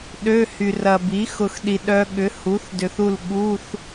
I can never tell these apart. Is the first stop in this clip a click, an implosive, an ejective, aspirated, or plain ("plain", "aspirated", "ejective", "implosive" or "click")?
implosive